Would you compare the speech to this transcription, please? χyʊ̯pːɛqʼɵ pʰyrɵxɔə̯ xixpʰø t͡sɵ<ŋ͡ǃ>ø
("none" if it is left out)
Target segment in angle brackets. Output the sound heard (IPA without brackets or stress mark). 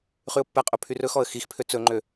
ŋ͡ǃ